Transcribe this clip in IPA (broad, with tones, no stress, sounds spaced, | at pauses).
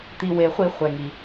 t̪ i˩ w e˩ χʷ i˧˩˧ χʷ ɛ˩ ŋ i˩